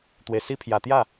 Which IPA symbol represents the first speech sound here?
t̪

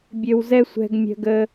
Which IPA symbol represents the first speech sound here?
bʲ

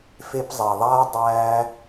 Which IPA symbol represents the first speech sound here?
f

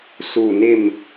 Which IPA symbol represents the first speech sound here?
s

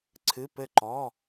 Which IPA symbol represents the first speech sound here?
ǀʰ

